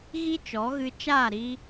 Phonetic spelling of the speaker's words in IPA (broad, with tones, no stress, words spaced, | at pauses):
ɣi˦t͡ʃɔ˨˦ɣɨ˧ t͡ʃaː˦˨ɾi˧